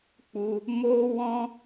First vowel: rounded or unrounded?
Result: rounded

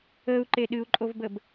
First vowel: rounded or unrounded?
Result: unrounded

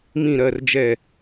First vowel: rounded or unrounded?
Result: unrounded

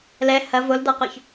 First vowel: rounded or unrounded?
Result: unrounded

